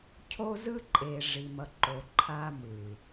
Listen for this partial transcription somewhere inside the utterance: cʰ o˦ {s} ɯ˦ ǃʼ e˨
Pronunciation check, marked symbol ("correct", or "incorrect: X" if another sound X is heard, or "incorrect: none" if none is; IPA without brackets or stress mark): incorrect: z